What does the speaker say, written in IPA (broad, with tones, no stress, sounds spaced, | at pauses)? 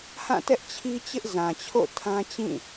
h ã˦˨ t ɛ˦ ʔ t͡ɕʰ i˦ t͡ɕ ɪ˦ ʔ z ã˨ t͡ɕʰ o̰˦˨ tʰ ã˦ t͡ɕ ĩ˦˨